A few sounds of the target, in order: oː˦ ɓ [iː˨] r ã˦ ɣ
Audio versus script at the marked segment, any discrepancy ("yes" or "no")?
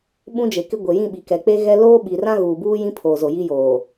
yes